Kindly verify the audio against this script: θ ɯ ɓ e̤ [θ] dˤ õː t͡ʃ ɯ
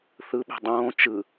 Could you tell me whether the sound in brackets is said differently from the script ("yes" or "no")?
yes